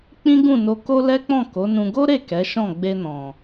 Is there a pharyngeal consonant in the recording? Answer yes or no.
no